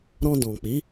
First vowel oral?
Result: no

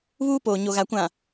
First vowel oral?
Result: yes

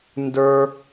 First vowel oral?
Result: yes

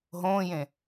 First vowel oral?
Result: no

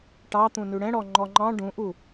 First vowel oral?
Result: yes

